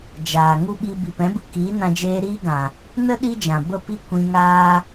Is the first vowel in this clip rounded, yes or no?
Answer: no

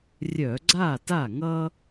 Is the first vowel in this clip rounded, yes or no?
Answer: yes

